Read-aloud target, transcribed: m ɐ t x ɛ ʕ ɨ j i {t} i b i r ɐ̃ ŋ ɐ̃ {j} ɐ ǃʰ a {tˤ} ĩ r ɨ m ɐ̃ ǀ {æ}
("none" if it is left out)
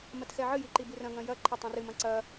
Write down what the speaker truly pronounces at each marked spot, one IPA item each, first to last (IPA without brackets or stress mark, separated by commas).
ǃ, j, tˤ, ɐ